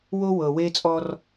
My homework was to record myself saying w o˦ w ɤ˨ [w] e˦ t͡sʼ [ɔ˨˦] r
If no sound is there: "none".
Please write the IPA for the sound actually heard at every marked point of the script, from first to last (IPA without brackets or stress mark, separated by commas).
w, ɔ˦